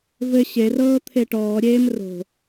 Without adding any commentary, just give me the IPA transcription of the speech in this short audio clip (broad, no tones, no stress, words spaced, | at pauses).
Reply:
vɘ ɕerɤː t̪ʰeʈɔːɾʲeːm ro̤